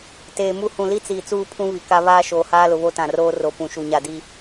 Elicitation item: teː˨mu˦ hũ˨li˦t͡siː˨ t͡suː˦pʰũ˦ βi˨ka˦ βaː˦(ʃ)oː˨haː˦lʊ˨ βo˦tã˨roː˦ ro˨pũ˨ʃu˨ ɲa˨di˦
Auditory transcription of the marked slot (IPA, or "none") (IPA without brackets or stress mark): ʃ